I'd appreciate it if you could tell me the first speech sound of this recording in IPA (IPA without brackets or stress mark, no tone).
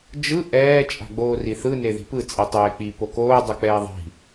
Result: d͡ʒ